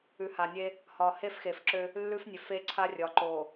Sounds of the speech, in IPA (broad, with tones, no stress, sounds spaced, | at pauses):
ʉ˨ h a˨ nʲ e˦ | h ɒ˨ h e˦ f x e˨ f ǁ ø˦ | lː ʉ˦ f nʲ ø˨ f e˦ ǀʰ a˦ rʲ ɒ˨ ǃ o˨